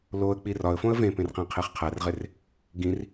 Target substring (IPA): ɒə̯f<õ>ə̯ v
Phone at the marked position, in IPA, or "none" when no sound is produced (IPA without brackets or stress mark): õ